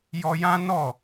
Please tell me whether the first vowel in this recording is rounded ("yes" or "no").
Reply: yes